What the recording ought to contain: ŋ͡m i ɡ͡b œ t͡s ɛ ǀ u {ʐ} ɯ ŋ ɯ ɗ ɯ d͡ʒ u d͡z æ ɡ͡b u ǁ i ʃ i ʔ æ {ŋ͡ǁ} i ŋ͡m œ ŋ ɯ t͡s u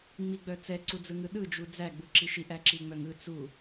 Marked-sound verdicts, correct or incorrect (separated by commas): incorrect, incorrect